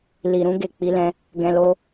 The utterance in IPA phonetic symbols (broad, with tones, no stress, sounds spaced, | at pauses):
l i˨ ɾ ũ˧ ɡ e˨ k͡p i˧ l ɛ̃˧ | ɡ ɛ̃˧ l o˧